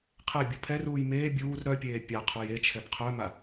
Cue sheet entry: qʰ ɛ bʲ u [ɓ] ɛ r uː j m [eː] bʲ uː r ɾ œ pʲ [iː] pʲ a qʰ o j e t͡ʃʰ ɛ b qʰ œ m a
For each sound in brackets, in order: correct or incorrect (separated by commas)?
incorrect, correct, incorrect